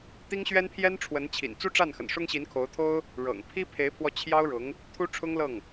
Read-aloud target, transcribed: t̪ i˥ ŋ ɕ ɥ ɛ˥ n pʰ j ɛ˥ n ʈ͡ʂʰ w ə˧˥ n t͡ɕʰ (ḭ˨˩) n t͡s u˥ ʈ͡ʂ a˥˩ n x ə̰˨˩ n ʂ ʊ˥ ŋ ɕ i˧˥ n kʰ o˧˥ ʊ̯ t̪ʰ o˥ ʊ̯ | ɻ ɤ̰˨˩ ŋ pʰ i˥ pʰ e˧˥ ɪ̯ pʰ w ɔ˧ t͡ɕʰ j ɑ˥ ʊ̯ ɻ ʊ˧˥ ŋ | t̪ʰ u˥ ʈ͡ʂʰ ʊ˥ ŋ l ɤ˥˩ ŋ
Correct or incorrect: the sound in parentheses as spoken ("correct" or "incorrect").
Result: correct